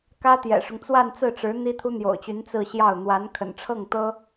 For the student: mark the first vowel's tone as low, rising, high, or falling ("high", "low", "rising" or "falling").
high